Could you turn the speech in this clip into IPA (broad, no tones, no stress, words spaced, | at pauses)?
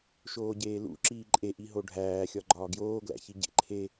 ʃoːɟeːlṵ ǁiːǃʼe ʔiɦoɖʱæː xʲɒɡ͡ǃɒːɡjoː ɡlæ̰çiɟḛǃʰe